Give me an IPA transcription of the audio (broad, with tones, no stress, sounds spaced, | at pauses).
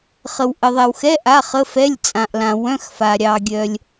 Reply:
χ ə˨ w ʔ ə˨ ðˤ ɛ˨ w x ɛ˧˥˧ ʔ a˧˥˧ χ ə˧˥˧ f ɛ˧˥˧ lʲ t͡sʼ ã˨ ʔ l ã˨ w œ̃˧˥˧ x f a˨ ɾʲ ɑ˨ ɡʲ œ˨ lʲ